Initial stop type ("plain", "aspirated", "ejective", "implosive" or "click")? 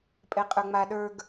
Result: ejective